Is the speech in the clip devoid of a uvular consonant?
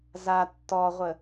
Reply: no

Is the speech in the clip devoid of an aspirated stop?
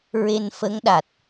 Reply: yes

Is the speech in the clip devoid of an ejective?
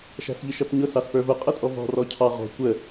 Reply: no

